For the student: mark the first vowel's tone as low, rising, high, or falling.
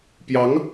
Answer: rising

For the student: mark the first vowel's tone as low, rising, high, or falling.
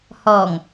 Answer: low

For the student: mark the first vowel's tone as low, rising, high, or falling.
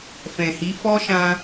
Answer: low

